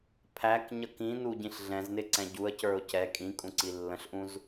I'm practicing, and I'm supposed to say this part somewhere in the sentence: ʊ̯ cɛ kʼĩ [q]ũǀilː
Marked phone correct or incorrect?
incorrect